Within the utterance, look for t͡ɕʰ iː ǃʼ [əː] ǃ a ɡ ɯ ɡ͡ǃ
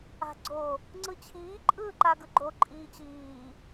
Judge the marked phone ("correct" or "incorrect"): incorrect